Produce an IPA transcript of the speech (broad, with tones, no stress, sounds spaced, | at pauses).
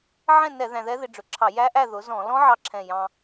ʕ ɛ̃˥˨ n ɛ˧˩˧ ð æ̃˧ ð ɛ˦˥ ð ɪ˧ ɖ͡ʐ ʊ˨˩ ǁʰ ɑ˧˩˧ j æ˦˥ ʔ æ˥˨ ð ʊ˩˥ z ɔ̃˧˩˧ l ɔ̃˦˥ ʕ ɑ˧ ǁʰ ɛ̃˨˩ j ɑ̃˧